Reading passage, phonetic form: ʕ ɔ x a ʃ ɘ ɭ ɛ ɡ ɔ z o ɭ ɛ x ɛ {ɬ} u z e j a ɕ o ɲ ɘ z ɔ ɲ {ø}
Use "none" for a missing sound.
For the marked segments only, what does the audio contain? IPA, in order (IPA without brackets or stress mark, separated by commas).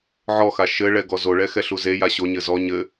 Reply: ɬ, ɘ